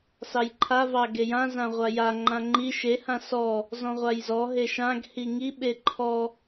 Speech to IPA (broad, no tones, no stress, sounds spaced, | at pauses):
s ɑ j ǃʰ a v ɑ ɡ e j ã z ã ʁʷ a j a ŋ͡ǃ ã ŋ͡ǃ i ʃ e h ã s ɔ | z ɔ̃ ʁʷ a j z ɔ ɦ e ʃ ã ɡ h i ŋ i ɓ e ǃʰ ɔ